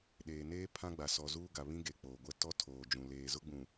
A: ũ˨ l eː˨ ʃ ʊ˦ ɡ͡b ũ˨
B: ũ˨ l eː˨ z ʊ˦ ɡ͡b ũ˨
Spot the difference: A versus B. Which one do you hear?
B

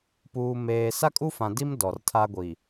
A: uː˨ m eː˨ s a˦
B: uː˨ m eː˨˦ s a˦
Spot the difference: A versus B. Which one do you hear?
A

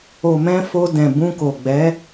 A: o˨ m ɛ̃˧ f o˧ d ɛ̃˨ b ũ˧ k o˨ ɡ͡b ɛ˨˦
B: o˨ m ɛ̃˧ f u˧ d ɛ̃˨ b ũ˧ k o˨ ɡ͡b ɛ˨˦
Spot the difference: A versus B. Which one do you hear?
A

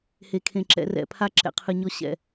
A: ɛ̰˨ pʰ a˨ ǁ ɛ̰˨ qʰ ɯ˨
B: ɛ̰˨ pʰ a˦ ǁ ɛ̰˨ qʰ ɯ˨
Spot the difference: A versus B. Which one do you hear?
B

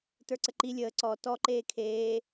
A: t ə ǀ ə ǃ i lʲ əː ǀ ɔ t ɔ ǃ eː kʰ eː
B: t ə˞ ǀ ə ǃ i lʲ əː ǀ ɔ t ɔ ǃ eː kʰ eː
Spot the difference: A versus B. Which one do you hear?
B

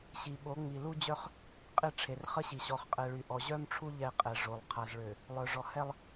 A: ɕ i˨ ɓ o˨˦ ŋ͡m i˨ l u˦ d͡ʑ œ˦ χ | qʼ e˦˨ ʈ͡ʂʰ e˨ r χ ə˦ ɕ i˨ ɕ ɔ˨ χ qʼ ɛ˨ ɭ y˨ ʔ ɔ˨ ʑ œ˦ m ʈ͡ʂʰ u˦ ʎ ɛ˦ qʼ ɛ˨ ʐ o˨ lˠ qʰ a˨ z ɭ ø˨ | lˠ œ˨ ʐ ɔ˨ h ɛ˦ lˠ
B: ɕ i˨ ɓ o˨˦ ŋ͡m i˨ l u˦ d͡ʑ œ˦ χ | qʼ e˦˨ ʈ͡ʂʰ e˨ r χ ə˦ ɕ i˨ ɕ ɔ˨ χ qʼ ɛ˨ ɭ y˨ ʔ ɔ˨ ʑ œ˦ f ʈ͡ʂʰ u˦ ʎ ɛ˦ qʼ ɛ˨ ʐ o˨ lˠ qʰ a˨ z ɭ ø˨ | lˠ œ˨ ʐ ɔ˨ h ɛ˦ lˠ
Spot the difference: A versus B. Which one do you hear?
A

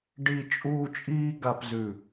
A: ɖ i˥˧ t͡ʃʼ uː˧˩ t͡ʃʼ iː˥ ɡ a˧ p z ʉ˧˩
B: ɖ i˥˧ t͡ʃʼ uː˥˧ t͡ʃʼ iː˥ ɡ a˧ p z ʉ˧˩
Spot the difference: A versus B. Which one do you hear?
B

